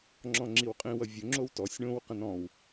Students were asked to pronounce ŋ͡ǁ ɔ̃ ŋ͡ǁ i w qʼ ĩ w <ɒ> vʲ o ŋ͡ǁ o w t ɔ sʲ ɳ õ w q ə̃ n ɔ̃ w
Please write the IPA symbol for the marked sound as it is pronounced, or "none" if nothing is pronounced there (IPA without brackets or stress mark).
ʌ